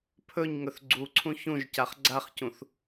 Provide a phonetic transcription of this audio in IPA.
pʰɵɲŋɵθ ɡ͡ǀuǀʰũ çũʒcaχ ɡ͡ǀaχcũθ

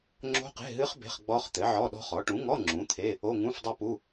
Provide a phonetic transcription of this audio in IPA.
ŋ͡ǁo̤˦˥qe̤˧˥˧ɦɨ˦˥χ be̤˧˥˧χɡ͡bɔ˦˥χt̪ɘ˩˥ ʕɔ˧˥˧ɗɔ̤˦˥χɔ˩˥ ʈũ˩˥ŋɔ˧˥˧ ŋ͡ǁũ˩˥t̪ʰe˧˥˧ | o˧˥˧ŋũ˧˥˧fdˤɘ˦˥pu˧˥˧

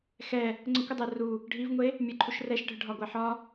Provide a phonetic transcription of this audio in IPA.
xɛ | ŋ͡ǀəkʷədˤɛ ru | ɖʱivŋʷe | mʲɛǃʰuʃrɛʃɖʱə ɖʱɒɡʷɛħɒ

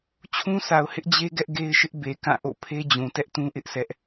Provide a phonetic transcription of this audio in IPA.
t͡ɕʰũ˦sʰa˨ʊ̯ hɪ˦ʔd͡ʑe˦ ɡɛ˦ʔɡe˦ɪ̯ʃɪ˦ʔ be˨ kã˦˨ ʔo̰˦˨pʰe˦d͡ʑũ˨ tɛ˦ʔtũ˦ʔɪ˦ʔ sʰɛ˦ʔ

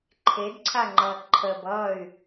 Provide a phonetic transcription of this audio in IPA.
ǃʰedǀʰaŋ͡ǃʌː ǃʰəb ʌːy̯

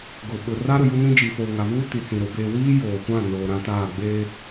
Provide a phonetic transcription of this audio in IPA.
ɡʊ˨ ɓʊ˨ ra˦ɾʊ˨ju˦nĩ˦ d͡ʒi˨foː˨ŋa˨vuː˦ ti˨t͡sĩ˨ ɾʊ˨˦beː˦ wiː˦ joː˨kʷã˦˨ noː˨ɾã˦taː˦˨ ɡ͡beː˦

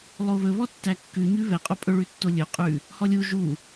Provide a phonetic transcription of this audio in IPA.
lˠoβɵβɔ tːækːʉ ɲʉβɛqʼo pʼɵɭʉtːo lʲɵ qʼʉ | hɔlʲu ʒu

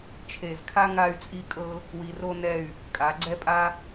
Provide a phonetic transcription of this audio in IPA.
t͡ʃʰe˧˩zkʰa˥ ŋa˥˧y̯t͡sʼi˥kʼɤ˥ | wi˧ro˥nɛ˥˧y̯ | kʼa˩˧ ɡ͡ǀɛ˥pʼa˥

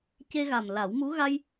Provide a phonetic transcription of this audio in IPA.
ce˧ɣa˨˩m la˨˩˦wmu˧˥ ɣa˧j

